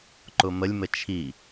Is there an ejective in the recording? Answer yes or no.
no